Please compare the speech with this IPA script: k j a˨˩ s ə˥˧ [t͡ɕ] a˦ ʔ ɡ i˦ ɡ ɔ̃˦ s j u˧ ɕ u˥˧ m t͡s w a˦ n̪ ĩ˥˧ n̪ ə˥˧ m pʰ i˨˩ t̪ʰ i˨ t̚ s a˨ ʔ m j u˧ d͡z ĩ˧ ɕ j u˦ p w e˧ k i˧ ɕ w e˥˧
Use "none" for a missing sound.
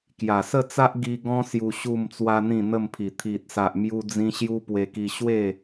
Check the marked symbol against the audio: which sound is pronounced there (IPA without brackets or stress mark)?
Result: t͡s